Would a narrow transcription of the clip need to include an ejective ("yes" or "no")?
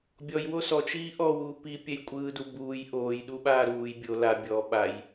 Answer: yes